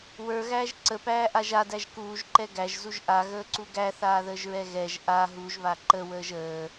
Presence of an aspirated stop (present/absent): absent